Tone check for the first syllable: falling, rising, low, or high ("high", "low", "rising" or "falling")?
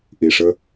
low